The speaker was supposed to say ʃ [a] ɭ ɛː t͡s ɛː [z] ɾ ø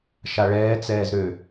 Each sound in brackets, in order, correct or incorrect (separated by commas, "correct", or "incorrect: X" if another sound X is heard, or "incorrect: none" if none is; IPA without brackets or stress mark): correct, correct